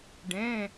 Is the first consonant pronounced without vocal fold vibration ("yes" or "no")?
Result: no